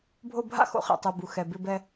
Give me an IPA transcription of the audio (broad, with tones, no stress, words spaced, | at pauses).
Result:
bʱo˦˨bʱa̰˦xo̰˨˦χɛ̰˨ tˤo˨ bu˨xɛ˨bɪ˧bɛ˧